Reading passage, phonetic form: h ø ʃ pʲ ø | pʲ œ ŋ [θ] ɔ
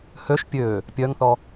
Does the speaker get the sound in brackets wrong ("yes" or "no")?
no